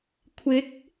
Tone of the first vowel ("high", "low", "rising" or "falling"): rising